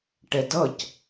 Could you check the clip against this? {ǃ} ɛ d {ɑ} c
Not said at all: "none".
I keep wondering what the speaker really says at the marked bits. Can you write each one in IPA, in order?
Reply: ʈ, ʌ

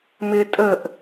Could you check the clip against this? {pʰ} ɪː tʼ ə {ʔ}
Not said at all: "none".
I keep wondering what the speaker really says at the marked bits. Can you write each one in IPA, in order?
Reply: m, ʔ

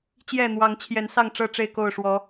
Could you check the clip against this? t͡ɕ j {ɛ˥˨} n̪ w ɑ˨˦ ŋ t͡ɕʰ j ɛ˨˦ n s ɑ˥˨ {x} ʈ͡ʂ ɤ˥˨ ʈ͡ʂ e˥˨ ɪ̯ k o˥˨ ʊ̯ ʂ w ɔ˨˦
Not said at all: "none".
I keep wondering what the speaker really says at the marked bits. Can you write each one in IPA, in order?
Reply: ɛ˥˨, ŋ

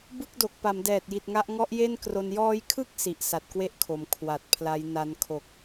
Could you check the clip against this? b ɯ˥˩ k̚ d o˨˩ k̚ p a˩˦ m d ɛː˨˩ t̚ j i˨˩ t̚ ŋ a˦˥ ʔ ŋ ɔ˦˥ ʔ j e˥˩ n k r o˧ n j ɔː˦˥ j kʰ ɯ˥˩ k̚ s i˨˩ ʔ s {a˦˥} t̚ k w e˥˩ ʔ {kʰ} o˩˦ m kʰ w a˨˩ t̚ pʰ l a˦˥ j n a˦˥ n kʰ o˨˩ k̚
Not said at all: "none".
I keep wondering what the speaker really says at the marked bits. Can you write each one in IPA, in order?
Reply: a˨˩, kʰ

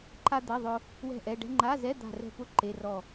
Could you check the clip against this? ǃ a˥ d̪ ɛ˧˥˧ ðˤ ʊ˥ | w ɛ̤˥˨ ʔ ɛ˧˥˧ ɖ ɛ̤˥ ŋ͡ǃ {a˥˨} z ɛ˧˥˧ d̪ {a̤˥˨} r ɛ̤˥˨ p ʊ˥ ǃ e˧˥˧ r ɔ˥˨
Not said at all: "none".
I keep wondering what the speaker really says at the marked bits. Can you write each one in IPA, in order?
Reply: a˧˥˧, a̤˥˨

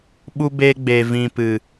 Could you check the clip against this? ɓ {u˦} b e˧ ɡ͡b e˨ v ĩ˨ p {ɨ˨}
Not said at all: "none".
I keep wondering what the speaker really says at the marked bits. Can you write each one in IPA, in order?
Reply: u˧, ɨ˨

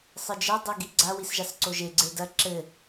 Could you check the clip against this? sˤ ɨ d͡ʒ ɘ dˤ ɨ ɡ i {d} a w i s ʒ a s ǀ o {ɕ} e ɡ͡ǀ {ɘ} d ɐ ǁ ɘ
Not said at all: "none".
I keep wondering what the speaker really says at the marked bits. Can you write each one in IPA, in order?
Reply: ɡ͡ǀ, ʒ, e

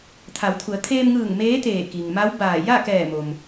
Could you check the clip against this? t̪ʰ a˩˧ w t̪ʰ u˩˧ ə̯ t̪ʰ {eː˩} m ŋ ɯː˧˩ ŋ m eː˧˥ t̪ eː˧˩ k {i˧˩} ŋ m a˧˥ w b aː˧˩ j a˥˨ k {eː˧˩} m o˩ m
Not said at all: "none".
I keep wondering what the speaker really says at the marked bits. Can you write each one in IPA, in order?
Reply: eː˧, i˩, ɛː˧˩

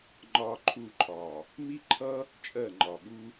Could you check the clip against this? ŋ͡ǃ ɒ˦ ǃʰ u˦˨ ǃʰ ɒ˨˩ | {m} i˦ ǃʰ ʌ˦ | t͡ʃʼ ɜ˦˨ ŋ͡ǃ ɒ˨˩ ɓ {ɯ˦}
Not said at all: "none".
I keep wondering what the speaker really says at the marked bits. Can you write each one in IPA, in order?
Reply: m, u˦

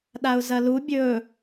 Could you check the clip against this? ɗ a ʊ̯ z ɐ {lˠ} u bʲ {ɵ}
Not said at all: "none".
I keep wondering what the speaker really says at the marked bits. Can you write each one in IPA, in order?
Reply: l, ɵ

